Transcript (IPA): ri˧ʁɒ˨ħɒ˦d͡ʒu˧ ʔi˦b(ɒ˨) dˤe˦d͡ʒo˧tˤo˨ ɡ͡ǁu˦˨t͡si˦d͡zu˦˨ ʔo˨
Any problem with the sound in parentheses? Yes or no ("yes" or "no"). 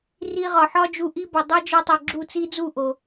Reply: no